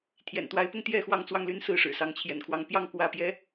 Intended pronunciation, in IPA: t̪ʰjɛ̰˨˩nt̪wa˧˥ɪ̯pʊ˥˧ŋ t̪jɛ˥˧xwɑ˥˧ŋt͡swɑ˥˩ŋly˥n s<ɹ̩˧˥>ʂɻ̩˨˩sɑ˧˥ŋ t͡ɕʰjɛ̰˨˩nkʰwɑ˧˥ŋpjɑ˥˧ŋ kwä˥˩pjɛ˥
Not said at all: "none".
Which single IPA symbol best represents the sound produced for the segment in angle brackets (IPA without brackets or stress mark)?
ɹ̩˥˩